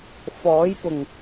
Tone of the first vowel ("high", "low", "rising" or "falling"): rising